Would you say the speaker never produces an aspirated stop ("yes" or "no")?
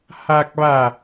yes